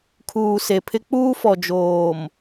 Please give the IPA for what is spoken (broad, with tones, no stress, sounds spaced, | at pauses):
kʰ uː˨ s e˨ pʰ ɪ˦ k͡p uː˦ f ɔ˨ d͡ʒ oː˨ m